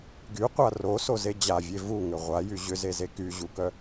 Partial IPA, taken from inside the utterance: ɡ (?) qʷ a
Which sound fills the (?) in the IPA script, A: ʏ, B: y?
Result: B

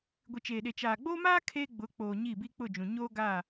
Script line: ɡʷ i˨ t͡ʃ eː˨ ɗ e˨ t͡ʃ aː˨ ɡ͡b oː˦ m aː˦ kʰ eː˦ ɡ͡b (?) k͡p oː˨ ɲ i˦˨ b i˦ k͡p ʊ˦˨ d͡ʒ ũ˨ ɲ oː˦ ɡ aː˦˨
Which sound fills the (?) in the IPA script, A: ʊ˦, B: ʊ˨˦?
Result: B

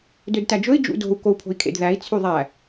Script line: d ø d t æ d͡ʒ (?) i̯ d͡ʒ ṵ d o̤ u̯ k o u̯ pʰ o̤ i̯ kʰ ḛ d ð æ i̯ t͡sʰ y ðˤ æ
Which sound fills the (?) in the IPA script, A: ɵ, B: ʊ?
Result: A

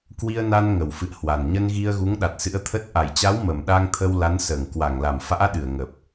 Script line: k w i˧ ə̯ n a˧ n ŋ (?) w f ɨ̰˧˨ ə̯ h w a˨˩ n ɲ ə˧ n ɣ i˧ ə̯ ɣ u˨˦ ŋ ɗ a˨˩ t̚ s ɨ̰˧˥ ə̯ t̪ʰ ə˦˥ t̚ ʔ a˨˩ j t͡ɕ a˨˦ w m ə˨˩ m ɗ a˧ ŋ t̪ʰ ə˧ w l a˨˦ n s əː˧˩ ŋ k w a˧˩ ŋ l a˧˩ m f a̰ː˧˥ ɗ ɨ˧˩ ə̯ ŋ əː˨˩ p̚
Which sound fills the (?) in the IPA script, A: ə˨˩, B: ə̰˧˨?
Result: A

